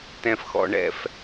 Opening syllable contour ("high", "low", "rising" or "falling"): low